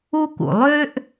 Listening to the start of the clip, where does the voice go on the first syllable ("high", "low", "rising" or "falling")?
high